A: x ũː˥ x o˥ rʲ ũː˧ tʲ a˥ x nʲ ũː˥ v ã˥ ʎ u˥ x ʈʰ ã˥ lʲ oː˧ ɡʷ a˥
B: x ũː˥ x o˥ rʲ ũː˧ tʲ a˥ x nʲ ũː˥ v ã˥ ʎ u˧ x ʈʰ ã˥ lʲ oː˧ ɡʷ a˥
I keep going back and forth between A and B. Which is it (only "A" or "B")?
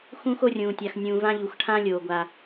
B